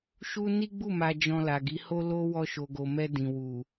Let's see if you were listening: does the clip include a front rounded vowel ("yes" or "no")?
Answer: no